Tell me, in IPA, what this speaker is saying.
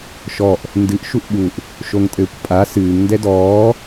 ʃ ɔ ʔ | n d ɨ ʔ ʃ u ʔ ɓ u ʔ | ʃ o ŋ tʼ ɘː kʷ pʼ a s ɨː ŋ n d ɛ d ɔː

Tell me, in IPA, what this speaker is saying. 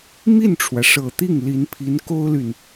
m i˥˩ n ʈ͡ʂʰ w ä˩ ʂ ɤ˨˩ t̪ i˥˩ ŋ l i˧˥ n pʰ i˧˥ n k o˥ ʊ̯ l y˨ n

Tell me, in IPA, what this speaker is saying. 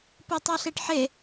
p o tˤ a ɬ e ʈ ħ e

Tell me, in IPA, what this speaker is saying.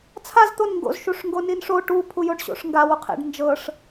t͡sʰ a z t̪ o n ŋ ɡ o̰ z ʃ u ʂ ŋ ɡ o n i n ʂ o ʈ u pʰ u j o ɖ ɕ o̰ ʂ ŋ ɡ a w u qʰ ḛ ɖ n d͡ʒ ɤ ʂ

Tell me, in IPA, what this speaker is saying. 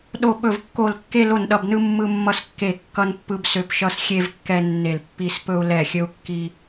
ɗ o˧˩ ɓ ɵ˧˩ v kː o˧˩ l kː e˧ l o˧˩ n ɗ ʌ˧˩ b n ɯ˧ mː ɯ˧ mː ʌ˧ s kː e˧˩ kː ʌ˧ n pː ɯ˧ b s ø˧˩ p ʃ ʌ˧ s xʲ e˧ v kː ɛ˧ nː e˧˩ l pː i˧ s p ɵ˧ u̯ l ɛ˧˩ xʲ ɵ˧ u̯ kː i˧

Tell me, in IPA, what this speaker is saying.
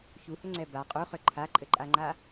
ç u h ʏ ŋ͡ǀ ɛ b a qʼ u χ ʏ ǃʰ a ǃʼ ɘ ǃʼ a ŋ͡ǃ a

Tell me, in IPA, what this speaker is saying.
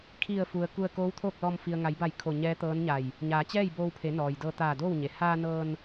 kʰ i˧˩ ə̯ f u˩ ə̯ k u˧ ə̯ k oː˧˥ w t̪ʰ oː˥˨ k̚ l ɔː˧ m f i˩ ə̯ ŋ a˩˧ j b a˧˩ j kʰ o˧˩ ɲ ɛː˧˥ t̪ ɤː˧˥ n ɲ a˧˩ j | ɲ aː˩˧ t͡ɕ ɛː˥˨ j b oː˧ w pʰ e˩˧ n ɔː˩ j d ɤː˧ t̪ aː˧˩ d oː˥˨ w ɲ e˩ h aː˧ n ɤː˧ n

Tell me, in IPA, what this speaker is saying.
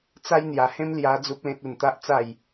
t͡s a˦ j n̪ j a˧ h ẽ˦ m l j a˦ d͡z u˦ p̚ l ẽ˦ t̚ u˧ n t̪ a˦ ʔ t͡s a˥˧ j

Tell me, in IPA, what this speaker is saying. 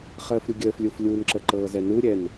χ əː f ɾʲ u ɡʲ əː f lʲ u f lʲ u n ǁ ə ǃ ɤː z ɛ n u ɾʲ ɛ n

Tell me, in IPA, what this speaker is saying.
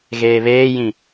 ɣ eː β eː j ĩ

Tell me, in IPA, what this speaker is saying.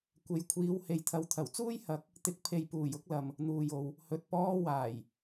kʷ e˨ j kʷʰ iː˨˧ w h e˨ j t̪ʰ ɐ˨˧ w t̪ʰ ɐ˨˩ w t͡s uː˥ j h ɐ˨˥ k̚ | t̪ ɪ˨˥ k̚ pʰ e˨ j p uː˨˩ j ʊ˥ k̚ l ɐ˨ m | n̪ uː˨ j o˨ w | h ɵ˨ t̚ p ɔː˥ w aː˨˩ j

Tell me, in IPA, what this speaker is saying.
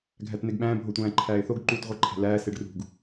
ɡʱ æ t n̪ e ɡ ɓ æ̃ː bʱ o tʷ æ̃ː ǃʰ æː ɪ̯ θ o ɡ ǃ uː t ʁʷ i ǃʰ æ̤ l æː s e ɖ r ṳ ɡ

